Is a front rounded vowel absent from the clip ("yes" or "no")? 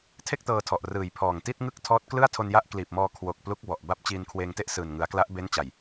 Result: yes